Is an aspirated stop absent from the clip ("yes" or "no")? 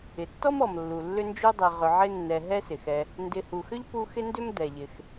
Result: yes